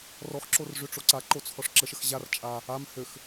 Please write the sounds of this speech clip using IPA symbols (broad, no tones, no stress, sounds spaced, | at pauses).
r ɔ x ǁ o r ʐ ø ʈ͡ʂ o ǀ a ǃ o t͡sʰ ɔ ʂ ǁ ə ʃ ə x ʑ a r t͡ʃʼ a | a m h ø x